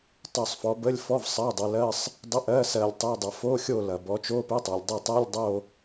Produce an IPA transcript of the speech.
tˤ o˦˨ sˤ f ɔ˨˦ b ə˧˥˧ lʲ f ɔ˧˥˧ v sˤ ɜ˧˥˧ dˤ ɐ˨˦ l ɜ˧˥˧ sˤ | dˤ ɪ˧˥˧ ʔ ɜ˧˥˧ s ɜ˦˨ lʲ tˤ ɛ˧˥˧ dˤ ɐ˨ f o˧˥˧ xʲ o˦˨ l ɐ˨ b ɔ˨˦ t͡ʃ o˧˥˧ p e˧˥˧ tˤ ɜ˨ lʲ dˤ e˦˨ tˤ ɜ˧˥˧ lʲ dˤ o˦˨

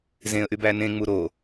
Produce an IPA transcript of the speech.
z ẽ ə̯ ʔ y b æ n ẽ ŋ͡m u ɾ o

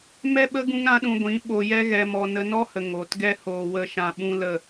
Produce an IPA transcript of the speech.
m ɛ˦ ɓ ə˦ ɡ ũ˦ ŋ ɾ ã˦ ɗ ũ˧ ɡʷ ĩ˨˦ ɓ o˧ j ɛ˦ ɣ ɛ˧ m ɔ˧ n ə˧ n ɔ˦ h ə˨ ŋ oː˨ t ɡ ɛ˦ h oː˨ w ə˧ ʃ ã˧ ɓ ũ˦ l ə˦˨

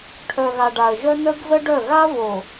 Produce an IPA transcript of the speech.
ʈʰ œ˨ ɣ a˨ ɖ a˨ ə̯ ʒ œ˦ n œ˦ b z ə˦ ɖ œ˦˨ ɣ a˦ v o˨

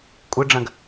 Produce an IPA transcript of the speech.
kʷʼ ɨ ɖ͡ʐ ɐ̃ ɡ

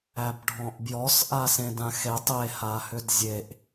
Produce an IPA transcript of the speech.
æ b ɖʱ ɔ̃ ʔ b j ɔ s ʔ a s ẽ d ã x e tˤ e h a h ʏ d zʲ e ʔ

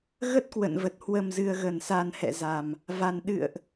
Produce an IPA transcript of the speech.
ɣ ə˦˥ t̚ k w ə̰˧˨ n v ə˨˩ t̚ h w ə˨˩ m z ɨ˨˩ ə̯ ɣ ə˧˩ n s a˨˩ n h ɛ̰˧˨ z a˨˩ m | v a˨˩ n ɗ ɨ̰˧˨ ə̯ ʔ

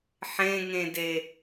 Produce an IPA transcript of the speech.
ħ ẽ ŋ ẽ d e

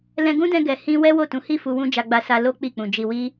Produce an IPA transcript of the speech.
l ɛ̃˧ ɡ ũ˦ d ɛ̃˧ ɡ ɛ˨ h ĩ˧ w ɛ˦ w o˦˨ t ũ˨˦ h i˦˨ f u˧ w ũ˦ d͡ʒ a˧ ɡ͡b a˧ s a˧ l o˦ k͡p i˦˨ k͡p ũ˨ d͡ʒ i˨ w i˧

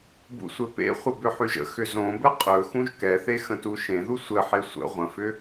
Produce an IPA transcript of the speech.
b ṵ sʷ ɘ p ḛ χʷ ə b ʏ ħ y ʒ ə̰ x ʏ z õ b ɘ qʼ ɵ x ũ ʒ k ɛ θ e x ə̃ t u ʃ ẽ ð u sʷ ɘ ħ e sʷ ə̰ ʁʷ ə̃ f ʏ

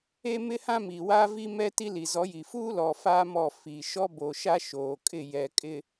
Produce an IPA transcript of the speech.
e˦ m ɪ˦ h ã˦ m i˨ w aː˦ v i˦ m ɛ˦ t i˦ l i˨ z ɔ˨˦ j i˨ f uː˦ l ɔ˨ f a˦ m ɔ˦˨ f i˨ ʃ ɔ˦ b oː˨ ʃ a˦ ʃ oː˨ kʼ ɪ˦˨ j ɛ˨ kʼ ɪ˨

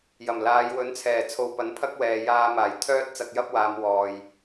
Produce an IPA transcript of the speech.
j ɐ˨˩ m l aː˨˧ j w ɵ˨˥ n t͡sʰ ɛː˨˩ t͡sʰ o˨ w p ɐ˨˥ n pʰ ɐ˥ k̚ w ɛː˨ j aː˧ m aː˨˩ j t̪ʰ œː˥ t̚ t͡s ɐ˧ k̚ j ɐ˥ p̚ w aː˨˧ m w ɔː˨ j

